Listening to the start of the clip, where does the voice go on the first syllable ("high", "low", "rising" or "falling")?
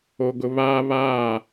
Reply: low